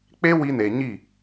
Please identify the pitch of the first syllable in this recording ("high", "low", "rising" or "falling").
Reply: high